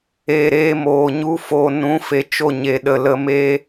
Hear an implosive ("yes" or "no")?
yes